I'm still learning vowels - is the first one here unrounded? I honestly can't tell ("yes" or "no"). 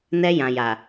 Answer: yes